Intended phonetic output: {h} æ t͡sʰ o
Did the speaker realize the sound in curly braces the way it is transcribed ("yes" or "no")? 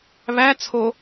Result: no